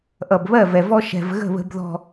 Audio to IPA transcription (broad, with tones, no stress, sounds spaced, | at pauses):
ʔ ʌ˨ b β ɜ˦˨ v ɛ˨ v ɔ˦ ʃ ɛ̤˨ v ɣ ə̤˦˨ β ə̤˦ b ð ɔ̤˦